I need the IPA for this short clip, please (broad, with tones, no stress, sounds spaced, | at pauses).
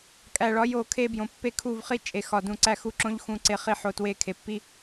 kʼ æ˨ ɭ ɒ˨˦ j o˨ kʰ e˦ b j õ˨ pː e˦ kʰ u˦˨ v χ i˦ t͡ʃʼ e˨ x ɒ˨ d ũ˨ ǀ æ˦ x u˦ ǁ õ˦ ʎ x ũ˨˦ ǀ e˨ χ i˨ ħ o˨ t w e˨˦ kʰ e˨ pː i˦